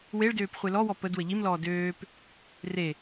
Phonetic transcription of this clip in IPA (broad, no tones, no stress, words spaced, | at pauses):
weɭdøːp χʷelɔwɔ pəd wəʎimlɔː døːp | re